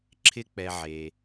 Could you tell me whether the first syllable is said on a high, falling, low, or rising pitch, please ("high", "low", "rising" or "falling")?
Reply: high